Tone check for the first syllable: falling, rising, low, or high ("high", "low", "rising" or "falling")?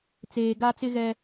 low